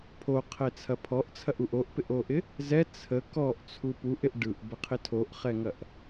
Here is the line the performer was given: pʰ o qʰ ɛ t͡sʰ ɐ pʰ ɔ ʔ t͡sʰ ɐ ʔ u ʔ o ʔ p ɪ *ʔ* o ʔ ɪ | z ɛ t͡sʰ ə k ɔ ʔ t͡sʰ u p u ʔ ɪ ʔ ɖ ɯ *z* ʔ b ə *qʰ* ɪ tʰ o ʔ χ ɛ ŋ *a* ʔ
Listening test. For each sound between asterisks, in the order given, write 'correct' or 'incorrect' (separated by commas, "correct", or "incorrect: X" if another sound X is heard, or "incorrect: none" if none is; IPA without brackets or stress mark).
correct, incorrect: none, correct, incorrect: ɐ